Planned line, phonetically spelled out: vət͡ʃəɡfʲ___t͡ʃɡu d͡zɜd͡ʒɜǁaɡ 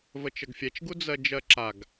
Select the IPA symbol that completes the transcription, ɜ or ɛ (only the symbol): ɛ